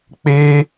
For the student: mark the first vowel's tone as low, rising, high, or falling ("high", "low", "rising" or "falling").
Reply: high